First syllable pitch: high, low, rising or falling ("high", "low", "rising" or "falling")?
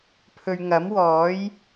low